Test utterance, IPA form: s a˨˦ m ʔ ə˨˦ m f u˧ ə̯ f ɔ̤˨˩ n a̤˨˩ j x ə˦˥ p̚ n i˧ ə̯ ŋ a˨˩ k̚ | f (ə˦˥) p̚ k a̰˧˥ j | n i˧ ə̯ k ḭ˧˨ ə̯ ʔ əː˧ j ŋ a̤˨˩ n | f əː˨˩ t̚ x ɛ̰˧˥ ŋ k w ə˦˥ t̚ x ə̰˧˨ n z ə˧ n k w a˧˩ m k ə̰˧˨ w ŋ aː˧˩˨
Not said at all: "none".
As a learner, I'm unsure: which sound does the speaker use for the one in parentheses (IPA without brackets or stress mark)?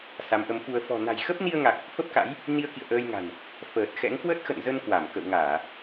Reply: ə˦˥